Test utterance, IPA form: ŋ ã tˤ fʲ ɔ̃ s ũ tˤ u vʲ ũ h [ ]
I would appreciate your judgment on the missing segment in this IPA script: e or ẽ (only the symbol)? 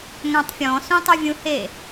e